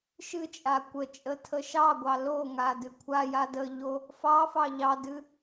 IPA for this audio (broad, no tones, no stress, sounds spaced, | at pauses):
ʃ ɨ t͡ʃʼ a kʷ ə t͡ʃʼ ə tʰ ə ʃ ɑ ɡʷ ɑ l o ŋ a d ɨ kʷʰ a j a d ə ʎ o | f ɑ f ɑ ʎ ɑ d ɨ